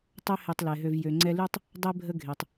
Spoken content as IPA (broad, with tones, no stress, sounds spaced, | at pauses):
tˤ ø˦ h e˨ tˤ l ɛ˩ ɦ ø˨ v j ø˨ ŋ͡ǀ ɛ˦ l y˥ tˤ | dˤ e˥ bʱ ə˦ ɡʱ e˩ tˤ